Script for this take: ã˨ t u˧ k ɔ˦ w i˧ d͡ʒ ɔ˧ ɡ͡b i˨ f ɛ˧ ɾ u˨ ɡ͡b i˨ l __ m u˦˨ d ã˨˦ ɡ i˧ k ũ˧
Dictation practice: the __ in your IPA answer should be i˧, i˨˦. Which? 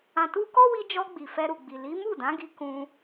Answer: i˨˦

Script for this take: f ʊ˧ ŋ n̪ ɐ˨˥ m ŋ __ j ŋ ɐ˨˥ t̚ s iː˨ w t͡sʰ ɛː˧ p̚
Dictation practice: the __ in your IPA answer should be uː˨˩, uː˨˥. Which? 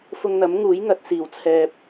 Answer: uː˨˥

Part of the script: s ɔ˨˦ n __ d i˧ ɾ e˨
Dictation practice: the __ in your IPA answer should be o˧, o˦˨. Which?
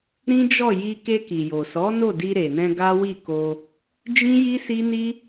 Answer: o˦˨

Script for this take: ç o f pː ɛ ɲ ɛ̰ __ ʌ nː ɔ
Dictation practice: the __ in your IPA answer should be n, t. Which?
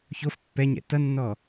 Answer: t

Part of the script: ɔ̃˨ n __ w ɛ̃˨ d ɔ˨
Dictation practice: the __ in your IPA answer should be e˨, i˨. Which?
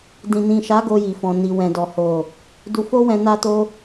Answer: i˨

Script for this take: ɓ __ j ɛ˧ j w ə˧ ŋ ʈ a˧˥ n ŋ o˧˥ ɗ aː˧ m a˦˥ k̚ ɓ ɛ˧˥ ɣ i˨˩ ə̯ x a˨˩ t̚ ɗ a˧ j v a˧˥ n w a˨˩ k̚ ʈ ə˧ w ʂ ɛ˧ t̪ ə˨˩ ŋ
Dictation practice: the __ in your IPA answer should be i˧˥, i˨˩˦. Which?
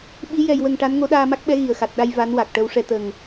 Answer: i˧˥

